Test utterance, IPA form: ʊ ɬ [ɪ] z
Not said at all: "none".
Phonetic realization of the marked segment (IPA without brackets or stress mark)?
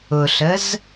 ə